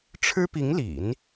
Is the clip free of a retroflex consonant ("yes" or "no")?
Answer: no